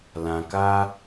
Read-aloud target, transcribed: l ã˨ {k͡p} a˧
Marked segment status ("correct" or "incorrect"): incorrect